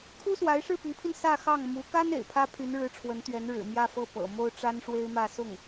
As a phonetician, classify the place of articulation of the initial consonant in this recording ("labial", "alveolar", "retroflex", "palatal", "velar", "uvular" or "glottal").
velar